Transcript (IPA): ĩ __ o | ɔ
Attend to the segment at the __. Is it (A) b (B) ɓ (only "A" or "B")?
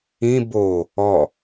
A